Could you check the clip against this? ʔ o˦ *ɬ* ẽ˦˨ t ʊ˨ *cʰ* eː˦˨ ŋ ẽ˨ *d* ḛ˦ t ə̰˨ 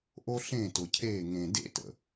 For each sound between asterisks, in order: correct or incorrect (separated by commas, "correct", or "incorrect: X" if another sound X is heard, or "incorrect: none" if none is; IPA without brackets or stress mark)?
correct, correct, correct